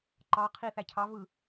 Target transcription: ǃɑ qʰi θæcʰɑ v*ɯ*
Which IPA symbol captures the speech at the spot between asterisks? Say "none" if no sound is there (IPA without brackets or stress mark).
ɯ